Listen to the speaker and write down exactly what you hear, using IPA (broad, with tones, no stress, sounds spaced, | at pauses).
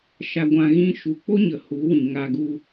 ʃ a˧ ɡʷ ã˧ ɣ ĩ˦ ʃ u˨ k͡p o˦ ɲ ə˨ h u˨˦ w ĩ˨ ŋ a˧ ɡ u˦